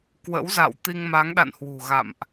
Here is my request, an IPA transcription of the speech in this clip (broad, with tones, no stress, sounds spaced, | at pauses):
k w ə̰˧˥ w z a̰˧˨ w t̪ i˧ ŋ m a˨˦ ŋ ɗ a̰˧˨ n h w ṳ˨˩ ɣ a̰˧˨ m ʔ